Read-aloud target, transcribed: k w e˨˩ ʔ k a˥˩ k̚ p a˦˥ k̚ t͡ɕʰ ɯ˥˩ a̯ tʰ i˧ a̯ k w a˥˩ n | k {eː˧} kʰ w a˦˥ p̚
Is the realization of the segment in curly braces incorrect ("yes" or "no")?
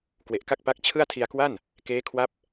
yes